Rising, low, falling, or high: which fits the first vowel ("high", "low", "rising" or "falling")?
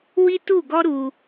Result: high